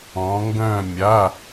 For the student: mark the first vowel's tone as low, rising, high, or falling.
rising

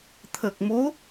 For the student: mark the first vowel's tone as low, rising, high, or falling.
low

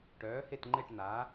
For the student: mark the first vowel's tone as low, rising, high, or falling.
rising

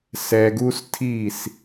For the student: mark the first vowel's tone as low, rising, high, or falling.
low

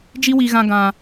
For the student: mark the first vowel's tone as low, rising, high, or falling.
high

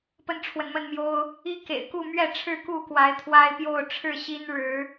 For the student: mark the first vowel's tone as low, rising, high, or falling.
high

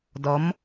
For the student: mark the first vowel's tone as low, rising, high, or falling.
rising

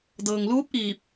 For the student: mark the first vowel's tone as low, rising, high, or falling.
low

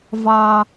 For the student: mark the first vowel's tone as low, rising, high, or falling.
low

